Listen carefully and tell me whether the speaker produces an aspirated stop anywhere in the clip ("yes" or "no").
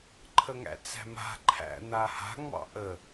yes